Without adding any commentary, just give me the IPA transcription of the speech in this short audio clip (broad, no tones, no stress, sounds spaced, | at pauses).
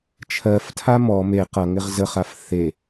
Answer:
t͡ʃʰ ɜ f tʰ a m ɔ m e q ʌ ŋ ɪ ʁ z ə χ a f θ e